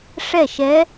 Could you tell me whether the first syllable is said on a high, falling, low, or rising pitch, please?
falling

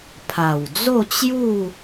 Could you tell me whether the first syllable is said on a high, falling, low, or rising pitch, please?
low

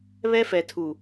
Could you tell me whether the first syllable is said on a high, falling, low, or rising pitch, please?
high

